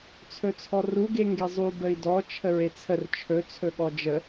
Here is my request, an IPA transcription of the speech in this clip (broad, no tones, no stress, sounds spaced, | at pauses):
t͡sʰ ɵ t͡sʰ ɔ r u ɡ e ŋ ɡ e zˤ u b ə i̯ d ɔ t͡ʃʰ ə ɹ e t͡sʰ ə r t͡ʃʰ ɵ t͡sʰ ɵ ɠ ɔ d͡ʒ ə